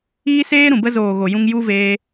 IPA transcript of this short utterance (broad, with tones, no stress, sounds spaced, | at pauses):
iː˦ s eː˦ ɾ ũ˨ b ə˧ z oː˨ ɣ o˨ j ũ˧ ŋ j u˦ v eː˦